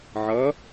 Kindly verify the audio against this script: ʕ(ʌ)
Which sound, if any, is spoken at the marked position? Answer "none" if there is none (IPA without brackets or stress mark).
ʌ